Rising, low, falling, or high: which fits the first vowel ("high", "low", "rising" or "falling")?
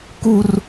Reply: high